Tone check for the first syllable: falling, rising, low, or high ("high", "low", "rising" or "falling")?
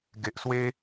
low